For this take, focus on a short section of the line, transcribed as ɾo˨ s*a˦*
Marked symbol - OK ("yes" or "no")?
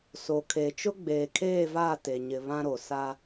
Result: yes